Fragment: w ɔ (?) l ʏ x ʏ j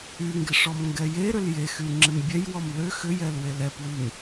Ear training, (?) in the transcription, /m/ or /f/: m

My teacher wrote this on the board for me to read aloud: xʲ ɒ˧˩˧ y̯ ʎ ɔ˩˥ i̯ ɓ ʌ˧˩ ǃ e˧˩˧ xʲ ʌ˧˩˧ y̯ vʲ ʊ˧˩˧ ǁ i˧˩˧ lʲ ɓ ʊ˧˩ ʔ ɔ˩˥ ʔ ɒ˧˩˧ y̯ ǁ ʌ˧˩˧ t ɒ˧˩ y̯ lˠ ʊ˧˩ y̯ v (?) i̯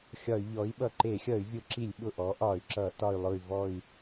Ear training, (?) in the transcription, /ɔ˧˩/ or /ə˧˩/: ɔ˧˩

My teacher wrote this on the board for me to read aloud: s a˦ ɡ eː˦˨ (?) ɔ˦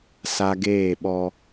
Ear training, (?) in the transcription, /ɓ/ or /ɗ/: ɓ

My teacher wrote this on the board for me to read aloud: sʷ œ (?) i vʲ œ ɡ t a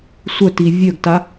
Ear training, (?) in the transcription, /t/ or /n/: t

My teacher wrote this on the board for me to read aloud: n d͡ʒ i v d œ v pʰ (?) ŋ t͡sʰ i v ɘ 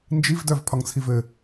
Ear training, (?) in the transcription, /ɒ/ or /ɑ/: ɒ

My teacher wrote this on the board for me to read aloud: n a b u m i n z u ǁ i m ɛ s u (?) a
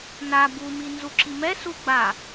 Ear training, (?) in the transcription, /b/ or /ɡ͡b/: ɡ͡b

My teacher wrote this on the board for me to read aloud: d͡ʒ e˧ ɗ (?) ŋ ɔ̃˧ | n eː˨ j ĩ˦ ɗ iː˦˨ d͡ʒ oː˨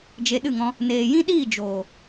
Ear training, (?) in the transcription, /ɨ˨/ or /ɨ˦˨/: ɨ˦˨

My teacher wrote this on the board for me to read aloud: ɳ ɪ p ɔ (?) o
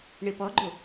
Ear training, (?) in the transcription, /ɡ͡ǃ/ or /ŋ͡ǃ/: ɡ͡ǃ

